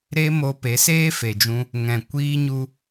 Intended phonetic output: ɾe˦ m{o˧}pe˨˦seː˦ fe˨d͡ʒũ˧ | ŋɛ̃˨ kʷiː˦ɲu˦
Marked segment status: correct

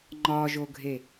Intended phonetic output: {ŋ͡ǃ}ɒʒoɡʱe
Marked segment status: correct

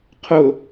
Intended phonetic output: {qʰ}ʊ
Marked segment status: correct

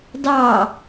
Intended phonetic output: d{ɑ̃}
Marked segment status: incorrect: ɑ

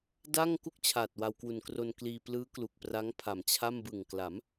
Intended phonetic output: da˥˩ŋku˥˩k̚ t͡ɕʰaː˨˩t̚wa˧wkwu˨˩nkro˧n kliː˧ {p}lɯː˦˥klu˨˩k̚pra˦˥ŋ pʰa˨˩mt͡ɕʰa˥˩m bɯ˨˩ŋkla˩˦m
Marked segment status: correct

